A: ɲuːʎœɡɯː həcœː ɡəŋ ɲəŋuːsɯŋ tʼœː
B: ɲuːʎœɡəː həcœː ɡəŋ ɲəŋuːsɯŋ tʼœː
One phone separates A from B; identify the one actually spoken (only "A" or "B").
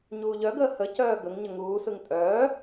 B